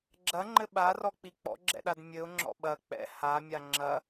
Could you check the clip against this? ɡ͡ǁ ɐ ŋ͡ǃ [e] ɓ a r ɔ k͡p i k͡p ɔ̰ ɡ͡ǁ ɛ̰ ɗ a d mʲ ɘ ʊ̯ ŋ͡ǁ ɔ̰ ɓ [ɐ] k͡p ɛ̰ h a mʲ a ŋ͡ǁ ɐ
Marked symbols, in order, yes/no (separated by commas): no, yes